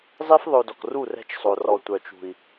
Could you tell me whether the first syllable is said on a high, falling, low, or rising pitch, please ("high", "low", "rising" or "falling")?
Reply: high